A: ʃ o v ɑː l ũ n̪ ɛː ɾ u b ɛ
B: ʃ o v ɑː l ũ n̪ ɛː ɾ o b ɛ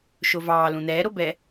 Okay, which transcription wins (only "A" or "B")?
B